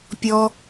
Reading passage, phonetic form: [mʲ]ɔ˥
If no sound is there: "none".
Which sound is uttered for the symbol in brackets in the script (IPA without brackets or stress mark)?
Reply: pʲ